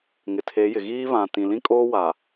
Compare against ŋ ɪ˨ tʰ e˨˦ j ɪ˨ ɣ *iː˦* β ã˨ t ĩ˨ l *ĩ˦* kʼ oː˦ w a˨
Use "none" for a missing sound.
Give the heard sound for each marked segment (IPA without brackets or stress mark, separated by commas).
iː˦, ĩ˦